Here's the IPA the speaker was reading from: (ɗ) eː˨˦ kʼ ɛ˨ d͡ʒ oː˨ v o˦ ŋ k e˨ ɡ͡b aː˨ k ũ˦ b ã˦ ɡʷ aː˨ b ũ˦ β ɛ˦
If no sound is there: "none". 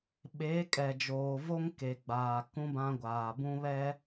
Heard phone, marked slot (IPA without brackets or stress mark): ɓ